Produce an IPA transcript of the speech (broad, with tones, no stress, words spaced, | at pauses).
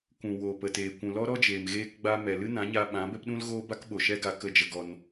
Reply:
kʷũ˨ woː˨pə˨teː˨ kʷũ˨lɔ˦ɾɔ˦d͡ʒeː˨m ɣeː˧kɡ͡ba˧mɛ˨ lɨ˦nã˨˦ɲa˧ ɓã˨˦bɛ˦pɗũ˦lɣoː˦ ba˦kɓo˨ʃɛ˦ ɡa˧ kə˦˨d͡ʒə˧ɡɔ˧n